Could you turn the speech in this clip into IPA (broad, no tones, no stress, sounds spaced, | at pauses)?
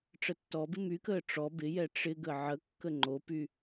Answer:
ʈ͡ʂ ə tː ɔ b ɪ m y k əː ʈ͡ʂ ɔ b ɪ j ɛ ʈ͡ʂ ɪ ɡ ə ʕ ə kː ə ŋ͡ǃ o p y